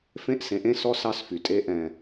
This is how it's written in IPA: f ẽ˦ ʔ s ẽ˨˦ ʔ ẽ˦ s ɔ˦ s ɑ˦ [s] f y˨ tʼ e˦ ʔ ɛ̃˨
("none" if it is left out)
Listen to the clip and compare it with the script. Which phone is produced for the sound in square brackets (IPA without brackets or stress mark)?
s